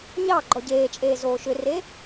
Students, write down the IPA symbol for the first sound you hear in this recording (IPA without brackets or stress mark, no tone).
ɲ